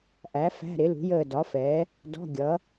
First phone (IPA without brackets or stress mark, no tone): ʔ